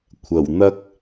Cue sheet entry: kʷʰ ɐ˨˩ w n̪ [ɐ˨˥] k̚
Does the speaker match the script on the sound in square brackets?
no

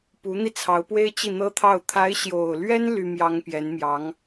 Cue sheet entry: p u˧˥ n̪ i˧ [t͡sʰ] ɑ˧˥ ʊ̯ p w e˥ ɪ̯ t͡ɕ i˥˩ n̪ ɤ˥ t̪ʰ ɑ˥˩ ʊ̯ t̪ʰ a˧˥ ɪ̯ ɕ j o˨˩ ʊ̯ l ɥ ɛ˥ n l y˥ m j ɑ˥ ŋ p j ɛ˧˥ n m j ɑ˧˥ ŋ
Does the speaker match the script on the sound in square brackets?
yes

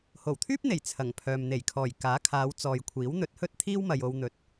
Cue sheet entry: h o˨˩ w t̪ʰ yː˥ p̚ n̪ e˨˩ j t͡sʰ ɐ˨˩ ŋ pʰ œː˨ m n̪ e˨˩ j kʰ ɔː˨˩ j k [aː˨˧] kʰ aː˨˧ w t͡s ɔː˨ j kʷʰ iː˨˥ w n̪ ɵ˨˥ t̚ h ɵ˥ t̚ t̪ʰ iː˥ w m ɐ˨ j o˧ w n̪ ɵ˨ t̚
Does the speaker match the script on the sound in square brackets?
no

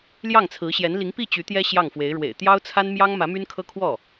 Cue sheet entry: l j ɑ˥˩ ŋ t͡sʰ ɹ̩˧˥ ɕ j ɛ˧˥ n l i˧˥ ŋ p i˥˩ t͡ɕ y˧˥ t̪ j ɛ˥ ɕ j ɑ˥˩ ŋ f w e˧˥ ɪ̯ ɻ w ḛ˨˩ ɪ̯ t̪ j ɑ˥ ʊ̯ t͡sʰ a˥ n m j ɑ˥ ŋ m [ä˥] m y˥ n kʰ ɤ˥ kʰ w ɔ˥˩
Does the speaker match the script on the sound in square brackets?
no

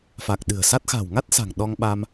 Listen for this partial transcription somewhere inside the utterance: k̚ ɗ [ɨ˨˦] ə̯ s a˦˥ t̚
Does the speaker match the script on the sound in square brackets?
no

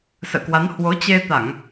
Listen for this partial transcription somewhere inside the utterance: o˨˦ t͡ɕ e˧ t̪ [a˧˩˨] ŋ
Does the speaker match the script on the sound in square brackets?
yes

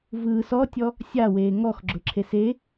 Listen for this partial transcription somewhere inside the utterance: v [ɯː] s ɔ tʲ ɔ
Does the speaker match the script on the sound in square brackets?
yes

